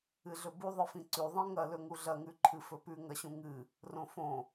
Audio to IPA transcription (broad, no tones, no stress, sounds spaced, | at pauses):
ɨ ɮ ɵ b u ðˤ ɨ f ĩ ǀ ʉ ðˤ ĩ ŋ ɐ l ɵ ŋ u ɮ ɐ ŋ ʉ ǃʰ ɨ f ɵ p ʉ ŋ ɐ ɕ ũ ŋ ɨ | r õ f õ